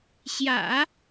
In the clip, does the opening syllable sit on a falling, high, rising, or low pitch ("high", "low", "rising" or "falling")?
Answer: low